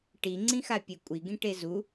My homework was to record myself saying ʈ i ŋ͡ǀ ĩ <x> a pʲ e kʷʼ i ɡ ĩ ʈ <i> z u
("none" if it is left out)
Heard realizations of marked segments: x, e

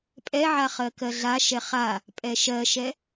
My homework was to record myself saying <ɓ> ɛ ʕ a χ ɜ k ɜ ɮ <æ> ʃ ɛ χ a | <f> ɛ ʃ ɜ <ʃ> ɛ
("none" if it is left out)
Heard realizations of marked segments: pʼ, a, pʼ, ʃ

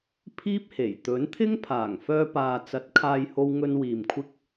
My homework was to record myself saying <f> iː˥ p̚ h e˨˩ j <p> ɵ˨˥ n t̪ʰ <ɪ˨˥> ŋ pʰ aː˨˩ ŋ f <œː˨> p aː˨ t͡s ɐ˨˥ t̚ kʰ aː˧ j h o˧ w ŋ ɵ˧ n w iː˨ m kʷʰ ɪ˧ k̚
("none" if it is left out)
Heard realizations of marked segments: pʰ, t̪, ɪ˥, œː˧

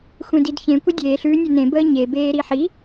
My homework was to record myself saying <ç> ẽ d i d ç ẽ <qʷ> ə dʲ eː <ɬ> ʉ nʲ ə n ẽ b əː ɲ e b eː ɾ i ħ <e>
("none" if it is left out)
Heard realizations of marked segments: xʷ, kʷ, ɬ, i

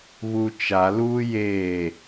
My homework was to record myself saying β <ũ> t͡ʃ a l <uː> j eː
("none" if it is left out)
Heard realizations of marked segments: u, uː

